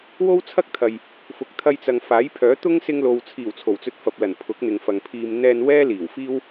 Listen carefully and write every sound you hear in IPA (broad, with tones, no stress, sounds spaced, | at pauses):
w o˥ w t͡sʰ ɐ˥ k̚ t̪ʰ ɐ˨ j | f ʊ˨ k̚ t̪ʰ ɐ˧ j t͡s ɐ˨ ŋ f aː˨˥ j pʰ œː˨˥ t̪ ʊ˥ ŋ s ɪ˧ ŋ l o˨ w t͡sʰ iː˨˩ w t͡sʰ o˨˩ w t͡s ɵ˧ t̚ f ɐ˨ p̚ l ɐ˨˩ n pʰ ʊ˨˥ k̚ n̪ ɪ˨ ŋ f ɐ˨ ŋ pʰ iː˧ m n̪ ɛː˧ n w ɛː˥ l iː˨˩ w f iː˥ w